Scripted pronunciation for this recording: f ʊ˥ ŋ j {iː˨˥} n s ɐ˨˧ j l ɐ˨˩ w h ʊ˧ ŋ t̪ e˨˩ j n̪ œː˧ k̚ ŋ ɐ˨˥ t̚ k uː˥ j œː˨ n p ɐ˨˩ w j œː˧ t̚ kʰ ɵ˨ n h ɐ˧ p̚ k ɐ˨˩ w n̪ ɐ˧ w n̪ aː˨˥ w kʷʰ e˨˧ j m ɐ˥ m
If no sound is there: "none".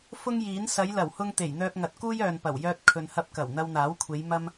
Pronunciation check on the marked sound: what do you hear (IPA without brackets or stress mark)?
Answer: iː˨˥